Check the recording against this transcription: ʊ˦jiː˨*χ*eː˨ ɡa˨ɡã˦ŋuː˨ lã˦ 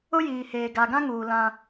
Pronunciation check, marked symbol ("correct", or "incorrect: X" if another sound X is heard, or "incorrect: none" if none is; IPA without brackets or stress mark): incorrect: h